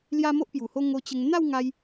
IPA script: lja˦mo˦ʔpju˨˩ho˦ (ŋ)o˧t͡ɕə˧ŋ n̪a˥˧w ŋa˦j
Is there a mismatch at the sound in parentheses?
no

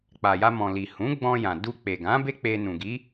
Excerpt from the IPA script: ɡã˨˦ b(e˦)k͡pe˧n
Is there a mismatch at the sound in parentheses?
no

